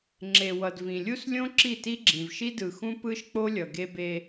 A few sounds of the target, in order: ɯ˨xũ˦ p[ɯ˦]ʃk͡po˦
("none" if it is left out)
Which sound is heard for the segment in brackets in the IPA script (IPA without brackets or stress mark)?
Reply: ɯ˦